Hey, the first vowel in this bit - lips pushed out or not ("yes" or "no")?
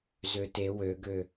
yes